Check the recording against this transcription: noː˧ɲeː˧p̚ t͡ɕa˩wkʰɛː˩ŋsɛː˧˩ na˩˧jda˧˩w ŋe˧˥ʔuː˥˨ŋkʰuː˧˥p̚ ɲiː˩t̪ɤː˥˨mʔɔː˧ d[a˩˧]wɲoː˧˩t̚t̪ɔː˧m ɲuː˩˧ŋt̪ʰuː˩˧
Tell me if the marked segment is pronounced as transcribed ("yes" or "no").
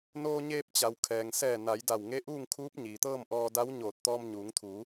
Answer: no